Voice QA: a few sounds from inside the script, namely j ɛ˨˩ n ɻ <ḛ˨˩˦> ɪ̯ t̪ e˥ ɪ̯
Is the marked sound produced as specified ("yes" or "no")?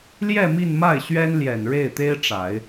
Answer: no